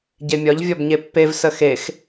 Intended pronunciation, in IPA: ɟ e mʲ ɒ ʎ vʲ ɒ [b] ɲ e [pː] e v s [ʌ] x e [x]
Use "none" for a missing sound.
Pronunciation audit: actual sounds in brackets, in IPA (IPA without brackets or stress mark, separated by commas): b, pː, ə, x